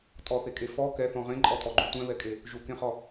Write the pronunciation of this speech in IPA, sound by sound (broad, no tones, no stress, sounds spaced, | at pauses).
tʼ ɔ θ e kʼ e f ɔ k ɛ θ ɔ̃ ʁ ẽ ǃʼ ɔ tʼ ɔ ɡ͡ǃ ũ tʷ ɛ̃ β ɛ kʼ e | ʒ u k ẽ χ ɔ